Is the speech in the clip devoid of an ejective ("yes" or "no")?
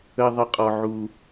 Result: no